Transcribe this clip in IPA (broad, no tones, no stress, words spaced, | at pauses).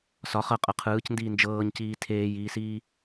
sɒ χɤqʼɤ qʰɯːcndiː nd͡ʒɤːɲciː tʰeːjiːsiː